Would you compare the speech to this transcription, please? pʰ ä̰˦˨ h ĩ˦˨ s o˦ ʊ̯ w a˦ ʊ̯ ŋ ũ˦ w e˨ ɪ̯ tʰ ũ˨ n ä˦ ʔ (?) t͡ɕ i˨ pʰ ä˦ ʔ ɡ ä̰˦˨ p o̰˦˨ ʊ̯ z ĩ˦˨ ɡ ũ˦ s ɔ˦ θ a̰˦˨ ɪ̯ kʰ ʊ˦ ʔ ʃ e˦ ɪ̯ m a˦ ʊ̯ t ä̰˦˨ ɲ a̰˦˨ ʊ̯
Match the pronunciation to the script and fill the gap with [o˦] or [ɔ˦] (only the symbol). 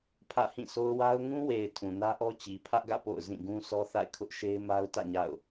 ɔ˦